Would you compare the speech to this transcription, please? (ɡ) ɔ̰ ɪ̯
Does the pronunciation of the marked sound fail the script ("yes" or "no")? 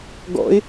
no